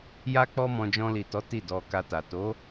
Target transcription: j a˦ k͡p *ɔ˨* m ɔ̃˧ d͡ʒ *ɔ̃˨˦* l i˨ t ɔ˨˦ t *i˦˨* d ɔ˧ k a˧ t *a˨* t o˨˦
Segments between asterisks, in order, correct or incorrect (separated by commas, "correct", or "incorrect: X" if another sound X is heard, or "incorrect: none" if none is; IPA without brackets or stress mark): incorrect: ɔ˦, incorrect: ɔ̃˧, correct, correct